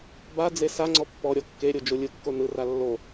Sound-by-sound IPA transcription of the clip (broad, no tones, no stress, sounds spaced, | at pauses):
b a d͡z e s a ŋ͡ǀ ɔ pː ɔ ɾʲ ɔ kː e ɾʲ o d͡ʒ o lʲ ɯ kː o n ɯ r a lː o